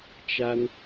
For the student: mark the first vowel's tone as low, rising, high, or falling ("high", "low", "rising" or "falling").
high